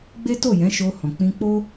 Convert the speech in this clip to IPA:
ɡ͡b e˦ t o˦˨ j ɛ̃˨˦ ʃ o˧ h ɔ̃˨ k͡p ĩ˧ k͡p o˦

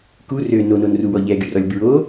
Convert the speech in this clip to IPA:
k u r ø n o n o n r u w ɔ ʎ ɛ ɡ y r ɔ lʲ b ɹ o

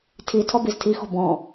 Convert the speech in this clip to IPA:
tʰ i tʰ ɔ b i z tʰ i x ɔ̤ b ɔ̃

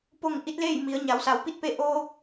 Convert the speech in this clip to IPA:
p o˥˨ ŋ ʔ i˧˥ t̚ l eː˥˨ j m i˩˧ ə̯ ɲ a˩˧ w s a˩˧ w p i˥˨ t̚ p e˧˥ ʔ oː˧ k̚

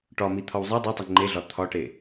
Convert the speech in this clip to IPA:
ʈ ɒ m i t̪ʰ ɒ w zˤ e dˤ u tˤ e ŋ͡ǃ e ɮ ɒ t̪ʰ ɒ ʈ e

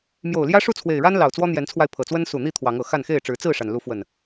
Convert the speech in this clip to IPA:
m j o˨˩ ʊ̯ l j ä˦ ʂ u˥˨ t͡sʰ w e˨˩ ɪ̯ ɻ a˦ n l ɑ˨˩ ʊ̯ t͡s w ɔ˦ n̪ j ɛ˨˦ n t͡sʰ w a˧ ɪ̯ pʰ ɤ˨˩ t͡s w ə˦ n s u˨˩ n̪ i˥˨ t̪ʰ w ɑ˨˦ ŋ ɤ˨˩ x a˥˨ n x e˥˨ ɪ̯ ʈ͡ʂ ɻ̩˨˦ t͡s ɹ̩˥˨ ʂ a˩ n l u˨˦ f w ə˨˩ n

